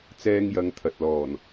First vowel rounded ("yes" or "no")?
no